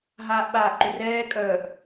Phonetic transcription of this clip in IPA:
ɦaːʔɓaːʔǃʏrɛː kʼœːʔ

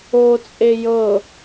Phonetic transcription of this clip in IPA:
ot͡sʼe jɤ

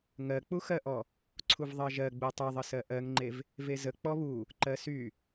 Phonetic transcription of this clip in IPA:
ŋɜk͡puxɜʔɔ | ǀʰuvðˤɜʒɜɡ͡bu tˤyðˤəsɜ ʔɜŋŋ͡ǃev | vezə k͡pɔβu | ǃɜsy

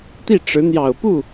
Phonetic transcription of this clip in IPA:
t̪i˥˩ʈ͡ʂɻ̩˧˥n̪jɑ˨˩ʊ̯pu˥˩

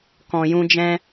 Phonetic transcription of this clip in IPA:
kɔ̃˨jũ˧ d͡ʒɛ̃˦

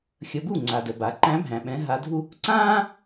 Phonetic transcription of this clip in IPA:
xʲə˧˥ bu˥˨ŋ͡ǀa˨də˨ ba˩˥ǃæ̃˧˥bʱæ̃˨ ɓɛ̃˧˥ɦa˧˥dʱu˥ | ǀãː˥

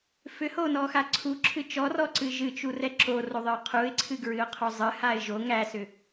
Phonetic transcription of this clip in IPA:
fʏhonɔxa ǀʰuǁʰɨ t͡ʃɔrɔǀɨ ʒɨt͡ʃurɛ ǁoroðˤɨʊ̯ qʰuɪ̯ǀʰɨɡɹɨʊ̯qʰo zˤɨhaɪ̯ ʒo ŋæsʏ

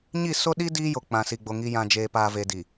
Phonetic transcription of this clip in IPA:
ɲi˦˨ so˦ɗi˦ diː˦jo˨ k͡pã˨si˨ɡ͡bo˨ ŋi˨jã˨ d͡ʒeː˨paː˨ ve˨di˨

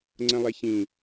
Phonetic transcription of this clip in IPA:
ŋ͡ǀə̃lˠeçĩ

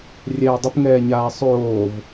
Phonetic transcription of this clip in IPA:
rʲɛːdˤəp ŋɛːɲaːsˤoːv

